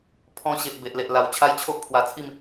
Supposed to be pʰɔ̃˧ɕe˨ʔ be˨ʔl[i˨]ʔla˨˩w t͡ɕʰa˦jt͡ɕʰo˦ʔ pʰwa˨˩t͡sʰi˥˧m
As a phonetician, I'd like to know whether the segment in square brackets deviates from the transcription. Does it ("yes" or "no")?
yes